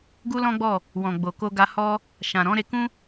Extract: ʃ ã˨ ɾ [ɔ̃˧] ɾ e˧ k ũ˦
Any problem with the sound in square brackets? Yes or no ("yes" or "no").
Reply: yes